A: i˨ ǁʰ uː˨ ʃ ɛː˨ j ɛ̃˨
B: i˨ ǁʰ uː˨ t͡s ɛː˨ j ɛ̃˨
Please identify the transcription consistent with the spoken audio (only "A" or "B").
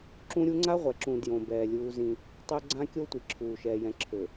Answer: A